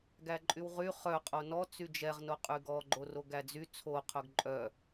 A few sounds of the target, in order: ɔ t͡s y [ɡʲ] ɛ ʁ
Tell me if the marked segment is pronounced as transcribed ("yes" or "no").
no